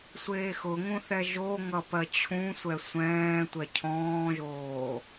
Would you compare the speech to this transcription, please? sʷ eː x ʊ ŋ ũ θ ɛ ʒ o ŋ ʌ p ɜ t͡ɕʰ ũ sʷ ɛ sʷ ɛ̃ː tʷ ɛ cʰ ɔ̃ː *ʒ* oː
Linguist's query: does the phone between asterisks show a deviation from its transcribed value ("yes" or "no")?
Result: no